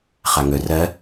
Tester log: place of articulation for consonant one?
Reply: uvular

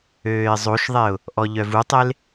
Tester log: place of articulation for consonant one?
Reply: alveolar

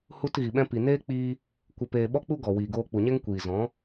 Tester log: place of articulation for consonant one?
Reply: glottal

